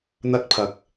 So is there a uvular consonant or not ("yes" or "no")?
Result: no